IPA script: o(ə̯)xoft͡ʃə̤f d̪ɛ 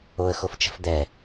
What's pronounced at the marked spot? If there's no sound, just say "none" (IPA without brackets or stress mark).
ə̯